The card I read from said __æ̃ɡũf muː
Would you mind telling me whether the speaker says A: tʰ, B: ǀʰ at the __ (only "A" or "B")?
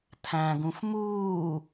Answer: A